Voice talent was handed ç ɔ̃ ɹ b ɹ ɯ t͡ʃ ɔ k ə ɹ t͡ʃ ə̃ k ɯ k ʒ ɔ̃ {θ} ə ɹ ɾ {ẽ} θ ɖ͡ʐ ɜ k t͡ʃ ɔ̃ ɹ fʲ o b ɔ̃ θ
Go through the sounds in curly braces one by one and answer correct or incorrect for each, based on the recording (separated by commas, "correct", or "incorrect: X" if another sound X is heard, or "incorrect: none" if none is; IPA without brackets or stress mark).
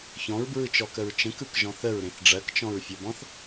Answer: correct, correct